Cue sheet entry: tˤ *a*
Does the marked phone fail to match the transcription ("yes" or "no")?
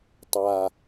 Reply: no